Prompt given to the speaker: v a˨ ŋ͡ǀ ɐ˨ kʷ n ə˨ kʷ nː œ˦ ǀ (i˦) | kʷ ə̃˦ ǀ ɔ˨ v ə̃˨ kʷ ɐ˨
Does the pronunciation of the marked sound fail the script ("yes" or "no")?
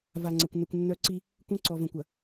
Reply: no